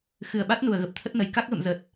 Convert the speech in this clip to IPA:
x ɨ˧˩ ə̯ ɓ a˦˥ t̚ n u˧˩ ə̯ ɣ ə˨˩ p̚ t̪ʰ ə˦˥ t̚ n ə˨˩ j k a˦˥ k̚ ɣ ə̰˧˨ m z ə˨˩ t̚

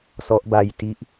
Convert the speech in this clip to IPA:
s ɔ˦˥ ʔ b a˧ j t i˦˥ ʔ

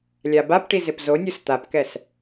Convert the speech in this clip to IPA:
lʲ a b a p ʈ i z ɪ p z o nʲ u s t̪ a p k ɛ s

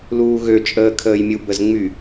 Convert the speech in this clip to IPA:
l uː ɣ ø t͡ʃʼ əː kʰ əː j mʲ u b ə z ŋ͡m y

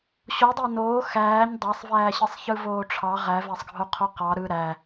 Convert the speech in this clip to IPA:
ɕ o dˤ æ n oː x æː ɲ dˤ æ sˤ v æː ɕ ɯ sˤ ç ɯ v oː ʈ͡ʂʰ ɑ ʁ æ v æ sˤ ɡʱ o qʰ o q ɑ ɾ ɯ ɾ æ

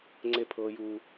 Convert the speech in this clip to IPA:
ŋ͡ǀ e˦ pʰ ɤː˦ j uː˦

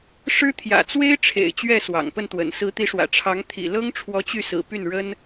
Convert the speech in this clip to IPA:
ʂ ɻ̩˥ t̪ʰ j ä̰˨˩ t͡s w e˥ ɪ̯ ʈ͡ʂʰ ḛ˨˩ ɪ̯ t͡ɕ ɥ ɛ˥˩ s w ɑ̰˨˩ ŋ p ə˥˩ n t̪ w ə̰˨˩ n s ɹ̩˧˥ t̪ i˧˥ ʂ w ä̰˨˩ ʈ͡ʂʰ ɑ˧˥ ŋ t̪ʰ ḭ˨˩ l ɤ˥ ŋ ʈ͡ʂʰ w ɔ˧˥ t͡ɕ y˥˩ s ɹ̩˨˩ p y˥˩ n ɻ ə˥ n

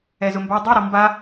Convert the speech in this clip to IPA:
ɛ z ʊ m b a dˤ i ɾ ɔ m b a

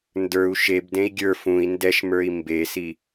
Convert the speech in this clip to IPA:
n d ə˞ u̯ ʃ e b d ẽ i̯ ɡʲ ə˞ f ũ i̯ n d ɛ ʃ m ə˞ i̯ m b e s i

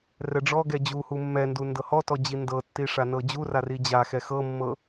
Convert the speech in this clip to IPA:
r ɛ ɖ͡ʐ ɔ ɡ ɛ d͡ʑ u h u mː ɛ n d u n d ɤ h ɔ t ɔ d͡ʑ i n d ɤ tː i ʂ a n ɤ d͡ʑ u r a r i d͡ʑ a x ɛ x ɤ mː ɤ

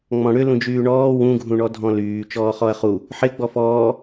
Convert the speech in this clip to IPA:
ŋ͡m ɔ̃ ɽ ʏ l ũ d͡ʒ yː ɳ ɔː w ũ ɡʱ ũ ɳ ɔ dʱ ɔ̃ l yː t͡ʃ ɔː χ ɔ ɐ̯ χ u | ħ ɪ ɡ͡b ɔ f ɔː

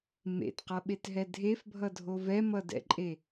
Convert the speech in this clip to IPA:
m ḛ t q ʌ ɓ e t ɦ ɛ dʱ e f bʱ ʌ dʱ o v ɛ m ʌ d ɛ̰ ǃʼ e

